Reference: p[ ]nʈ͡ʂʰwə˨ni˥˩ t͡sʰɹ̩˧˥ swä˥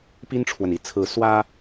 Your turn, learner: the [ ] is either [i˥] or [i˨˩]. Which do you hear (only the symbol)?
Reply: i˥